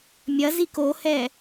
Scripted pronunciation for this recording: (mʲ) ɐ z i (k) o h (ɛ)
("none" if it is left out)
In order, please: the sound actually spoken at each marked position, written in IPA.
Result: mʲ, k, ɛ

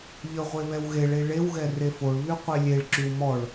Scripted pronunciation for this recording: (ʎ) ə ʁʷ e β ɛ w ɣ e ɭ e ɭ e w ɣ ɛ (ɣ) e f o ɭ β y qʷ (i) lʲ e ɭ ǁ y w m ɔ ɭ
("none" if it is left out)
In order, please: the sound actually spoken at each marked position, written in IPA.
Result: ʎ, r, e

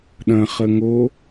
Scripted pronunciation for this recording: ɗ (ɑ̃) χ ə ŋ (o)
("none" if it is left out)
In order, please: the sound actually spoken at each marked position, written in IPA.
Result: ɐ̃, o

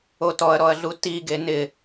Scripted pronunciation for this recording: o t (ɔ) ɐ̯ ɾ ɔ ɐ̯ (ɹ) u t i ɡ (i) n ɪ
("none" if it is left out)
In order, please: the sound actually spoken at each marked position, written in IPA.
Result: ɔ, ɮ, e

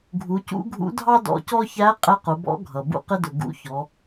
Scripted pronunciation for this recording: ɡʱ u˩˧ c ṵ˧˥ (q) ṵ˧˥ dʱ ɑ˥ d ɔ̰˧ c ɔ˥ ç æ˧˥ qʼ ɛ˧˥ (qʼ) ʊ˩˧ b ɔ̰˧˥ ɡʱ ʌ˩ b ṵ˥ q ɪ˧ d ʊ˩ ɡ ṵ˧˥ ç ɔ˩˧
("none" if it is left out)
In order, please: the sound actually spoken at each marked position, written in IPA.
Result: ɡʱ, q

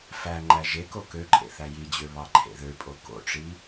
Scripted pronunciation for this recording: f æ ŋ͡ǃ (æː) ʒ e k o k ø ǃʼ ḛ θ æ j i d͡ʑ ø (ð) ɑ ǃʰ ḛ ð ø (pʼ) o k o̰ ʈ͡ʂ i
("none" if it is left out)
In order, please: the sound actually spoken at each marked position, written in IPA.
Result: æ, β, pʼ

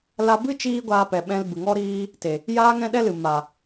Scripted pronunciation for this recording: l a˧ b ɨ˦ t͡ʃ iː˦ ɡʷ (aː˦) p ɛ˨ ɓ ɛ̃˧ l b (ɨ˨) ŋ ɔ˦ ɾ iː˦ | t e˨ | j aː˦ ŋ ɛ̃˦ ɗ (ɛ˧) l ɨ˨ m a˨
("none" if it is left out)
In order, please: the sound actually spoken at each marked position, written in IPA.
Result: aː˧, ɨ˨, ɛ˦

